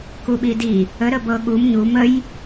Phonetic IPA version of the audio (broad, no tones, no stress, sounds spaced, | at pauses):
k u ɓ i d i | ə ɾ ə b ɤ ɠ u m ɲ u m ə j